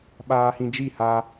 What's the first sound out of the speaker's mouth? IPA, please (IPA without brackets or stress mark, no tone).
ɓ